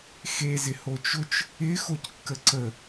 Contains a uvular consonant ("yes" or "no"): no